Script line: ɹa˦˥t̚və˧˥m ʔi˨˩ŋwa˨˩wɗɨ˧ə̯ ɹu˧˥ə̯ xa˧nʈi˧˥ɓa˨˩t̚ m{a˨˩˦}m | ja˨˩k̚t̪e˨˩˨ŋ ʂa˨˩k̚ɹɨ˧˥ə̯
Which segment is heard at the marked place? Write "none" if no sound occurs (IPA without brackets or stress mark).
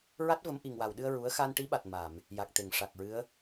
a˨˩˨